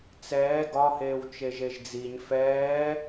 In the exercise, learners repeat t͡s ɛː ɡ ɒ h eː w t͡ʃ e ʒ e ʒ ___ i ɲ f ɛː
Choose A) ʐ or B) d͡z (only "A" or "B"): B